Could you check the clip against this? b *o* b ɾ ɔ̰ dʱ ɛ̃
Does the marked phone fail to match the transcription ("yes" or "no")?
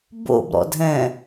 yes